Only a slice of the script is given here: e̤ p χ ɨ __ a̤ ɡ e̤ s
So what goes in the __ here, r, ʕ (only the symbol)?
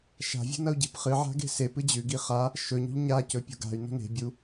ʕ